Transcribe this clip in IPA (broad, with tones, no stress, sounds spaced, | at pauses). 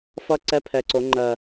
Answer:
f ʌ˦˥ ǀ ɛ˧˥˧ pʰ ɛ˩˧ ǀ o˩˧ ŋ͡ǃ ɜ˨˩